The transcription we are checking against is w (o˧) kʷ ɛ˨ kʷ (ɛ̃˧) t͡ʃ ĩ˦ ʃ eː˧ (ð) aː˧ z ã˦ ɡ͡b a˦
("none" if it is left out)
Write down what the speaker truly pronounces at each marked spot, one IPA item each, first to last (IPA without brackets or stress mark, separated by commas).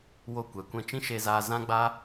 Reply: o˧, ɛ̃˧, z